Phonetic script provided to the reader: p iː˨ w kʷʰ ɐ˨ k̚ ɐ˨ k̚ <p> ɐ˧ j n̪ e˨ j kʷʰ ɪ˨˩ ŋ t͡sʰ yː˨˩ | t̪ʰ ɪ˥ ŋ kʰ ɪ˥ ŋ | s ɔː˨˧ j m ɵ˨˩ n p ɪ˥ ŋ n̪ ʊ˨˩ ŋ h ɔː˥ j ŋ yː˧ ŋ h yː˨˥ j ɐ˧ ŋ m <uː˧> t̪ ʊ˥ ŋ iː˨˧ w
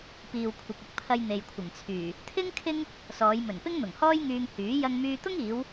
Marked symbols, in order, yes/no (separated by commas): no, no